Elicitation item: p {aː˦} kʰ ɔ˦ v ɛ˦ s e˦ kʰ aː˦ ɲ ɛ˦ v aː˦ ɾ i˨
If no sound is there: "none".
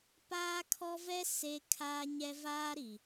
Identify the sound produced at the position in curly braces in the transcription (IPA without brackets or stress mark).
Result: aː˦